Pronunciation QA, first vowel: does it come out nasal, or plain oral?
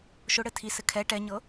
oral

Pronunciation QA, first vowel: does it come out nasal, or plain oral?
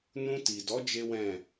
nasal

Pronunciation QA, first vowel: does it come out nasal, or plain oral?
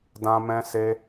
nasal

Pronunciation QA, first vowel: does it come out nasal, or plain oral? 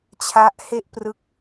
oral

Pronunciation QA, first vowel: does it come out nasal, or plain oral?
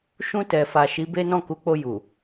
nasal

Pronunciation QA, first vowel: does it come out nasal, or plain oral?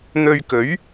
oral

